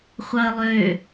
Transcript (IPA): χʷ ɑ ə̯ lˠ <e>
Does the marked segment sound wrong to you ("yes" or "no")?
yes